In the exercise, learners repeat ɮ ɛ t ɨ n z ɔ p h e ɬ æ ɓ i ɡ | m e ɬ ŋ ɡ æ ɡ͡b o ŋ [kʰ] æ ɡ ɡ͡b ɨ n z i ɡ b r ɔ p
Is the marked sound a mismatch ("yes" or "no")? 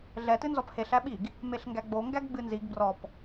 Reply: yes